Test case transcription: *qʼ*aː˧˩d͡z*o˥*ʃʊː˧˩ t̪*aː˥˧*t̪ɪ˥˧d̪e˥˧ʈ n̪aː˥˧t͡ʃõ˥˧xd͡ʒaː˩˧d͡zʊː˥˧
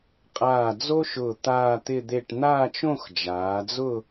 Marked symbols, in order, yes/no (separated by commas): yes, yes, yes